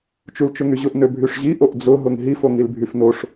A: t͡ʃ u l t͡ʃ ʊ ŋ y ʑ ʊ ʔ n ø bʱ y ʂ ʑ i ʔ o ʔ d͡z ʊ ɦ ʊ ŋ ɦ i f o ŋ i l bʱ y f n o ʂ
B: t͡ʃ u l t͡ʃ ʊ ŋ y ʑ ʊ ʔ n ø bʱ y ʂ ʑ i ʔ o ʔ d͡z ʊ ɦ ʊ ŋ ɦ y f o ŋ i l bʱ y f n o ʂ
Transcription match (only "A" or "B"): A